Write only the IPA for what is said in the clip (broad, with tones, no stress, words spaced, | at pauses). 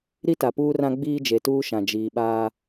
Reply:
ɾi˦ta˨puː˦rã˦ ɡ͡biː˦d͡ʒe˨tuː˦ʃã˨ d͡ʒiː˨ɓaː˦